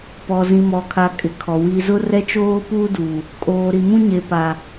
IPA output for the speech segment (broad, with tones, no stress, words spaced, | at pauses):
pɔ˨ zĩ˨mɔ˨kʰa˨ kʼɪ˨kʰɔ˨ wi˨zʊ˦rɛ˦ t͡ʃoː˦puː˦du˨ | kʼoː˨ɾi˨mũ˦ ɲe˨pa˨